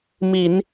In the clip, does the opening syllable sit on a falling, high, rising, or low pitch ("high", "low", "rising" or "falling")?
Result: low